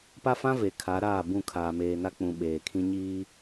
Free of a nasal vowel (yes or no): no